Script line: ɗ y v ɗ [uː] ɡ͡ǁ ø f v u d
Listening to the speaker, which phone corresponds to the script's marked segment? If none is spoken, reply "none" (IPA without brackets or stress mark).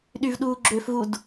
uː